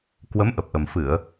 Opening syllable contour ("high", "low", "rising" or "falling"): rising